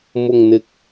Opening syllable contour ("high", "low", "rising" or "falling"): low